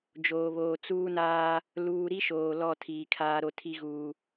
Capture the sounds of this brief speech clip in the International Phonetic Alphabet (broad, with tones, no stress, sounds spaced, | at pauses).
d͡ʒ oː˨ β oː˨ t͡s uː˦ n aː˦ | l uː˨ ɾ i˦ ʃ oː˨ l ɔ˦˨ tʰ iː˨ kʰ aː˦ ɾ o˦ tʰ i˦ ɣ uː˨